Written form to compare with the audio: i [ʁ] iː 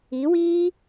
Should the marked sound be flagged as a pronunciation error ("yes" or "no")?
yes